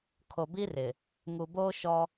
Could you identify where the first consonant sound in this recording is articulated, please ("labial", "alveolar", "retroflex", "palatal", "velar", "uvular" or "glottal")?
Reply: velar